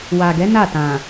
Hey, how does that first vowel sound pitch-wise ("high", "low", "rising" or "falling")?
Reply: low